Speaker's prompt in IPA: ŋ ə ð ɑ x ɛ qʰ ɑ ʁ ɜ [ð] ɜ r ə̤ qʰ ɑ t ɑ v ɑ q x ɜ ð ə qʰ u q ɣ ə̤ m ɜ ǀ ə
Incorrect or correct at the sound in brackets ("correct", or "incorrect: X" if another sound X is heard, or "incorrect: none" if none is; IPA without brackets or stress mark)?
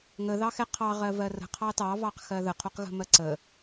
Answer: incorrect: v